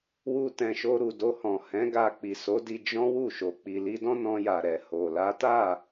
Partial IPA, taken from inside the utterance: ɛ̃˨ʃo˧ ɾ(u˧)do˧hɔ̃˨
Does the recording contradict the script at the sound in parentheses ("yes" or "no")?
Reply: yes